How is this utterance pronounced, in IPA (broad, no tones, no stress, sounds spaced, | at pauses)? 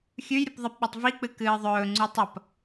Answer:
xʲ ʉ j ɾʲ u p ðˤ ɐ p ɓ a tˤ v i k͡p ɨ k ɨː ðˤ ɵː ŋ͡ǀ u tˤ ɐ p